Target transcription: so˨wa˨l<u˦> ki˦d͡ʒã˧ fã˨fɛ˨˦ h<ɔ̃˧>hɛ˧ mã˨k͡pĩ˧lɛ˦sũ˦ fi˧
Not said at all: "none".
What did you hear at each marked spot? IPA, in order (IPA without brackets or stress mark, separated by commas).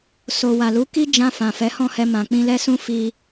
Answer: u˨˦, ɔ̃˦˨